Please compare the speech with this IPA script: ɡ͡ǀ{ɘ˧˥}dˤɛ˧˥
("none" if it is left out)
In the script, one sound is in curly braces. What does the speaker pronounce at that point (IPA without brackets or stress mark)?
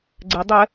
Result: ɘ˧˥